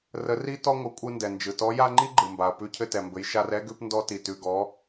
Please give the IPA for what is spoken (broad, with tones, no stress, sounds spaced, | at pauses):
r ə˧˥ r i˥ t ɔ˥ ŋʷ ə˧˥ kʷʼ ɯ˧ n d ɛ˩ n d͡ʒ ɯ˩ t ɔ˧˥ j a˥ ŋ͡ǃ i˥ ɡ͡ǃ ɯ˩ m b a˩ ɐ̯ p ʉ˧˥ cʰ ɘ˧ t ɛ˩ m b ɘ˩˧ j ʃ a˧ r ɛ˥ ɡ ʉ˧ p n d ɔ˧ t i˩ t ʉ˩ ɡ ɔ˩˧